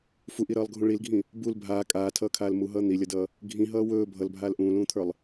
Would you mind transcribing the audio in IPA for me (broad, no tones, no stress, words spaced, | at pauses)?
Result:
fuʔiɾʌːlˠɡʱũ ɭilɡʱĩ | bul bʱaː kʼaːtʰʌːkʰaːl muɦʌː n̪ilʲʌdʌː | ɡʱĩɦʌː wɵː bʱʌlbʱaːl ʔũːlũːt̪ʰə˞lˠ